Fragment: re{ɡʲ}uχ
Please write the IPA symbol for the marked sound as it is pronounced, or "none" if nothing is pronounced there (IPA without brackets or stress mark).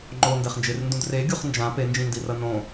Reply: ɡʲ